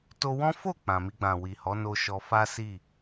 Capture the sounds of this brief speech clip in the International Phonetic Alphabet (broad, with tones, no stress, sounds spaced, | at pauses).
t o˧ w ɔ̃˦ f o˦˨ k͡p ã˨ m i˧ ɡ͡b ã˨ w i˨ h ɔ˨˦ n o˧ ʃ ɔ˧ f a˦ s i˦˨